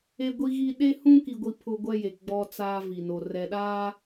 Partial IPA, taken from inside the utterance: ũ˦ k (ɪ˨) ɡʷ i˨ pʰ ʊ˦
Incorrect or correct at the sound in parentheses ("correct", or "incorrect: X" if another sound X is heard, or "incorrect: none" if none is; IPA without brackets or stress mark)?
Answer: incorrect: i˨